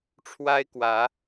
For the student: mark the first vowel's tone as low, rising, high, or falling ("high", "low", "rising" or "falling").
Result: high